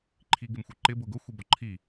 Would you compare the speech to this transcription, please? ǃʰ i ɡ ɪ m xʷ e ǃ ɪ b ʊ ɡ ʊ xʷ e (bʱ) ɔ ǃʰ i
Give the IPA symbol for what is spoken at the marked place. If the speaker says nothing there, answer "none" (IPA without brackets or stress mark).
b